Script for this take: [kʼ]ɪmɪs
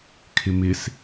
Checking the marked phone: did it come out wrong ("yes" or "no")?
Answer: yes